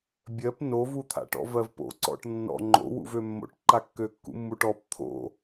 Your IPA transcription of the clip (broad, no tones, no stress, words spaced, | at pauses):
bʲɜp novut̪ʰa̰ʈɔ̰ vɜvpo̰ǀɔ̰ʈ nːɔ̰ ŋ͡ǃo̰wṵvø mːo̰ʈǃa kːøkːṵmːuʈɔp t̪ʰo̰